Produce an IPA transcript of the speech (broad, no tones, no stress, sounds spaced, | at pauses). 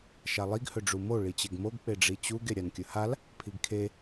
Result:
ʃ a lˠ i ɡ h ɵ ɖ͡ʐ u m o ɭ i t͡ɕ e ɡ m o ɡ k͡p e ɖ͡ʐ i t͡ɕ u ɡ e ɾʲ a n kʲ ɵ h a l | pʰ i ɡ kʰ e